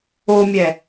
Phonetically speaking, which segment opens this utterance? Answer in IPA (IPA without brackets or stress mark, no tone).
o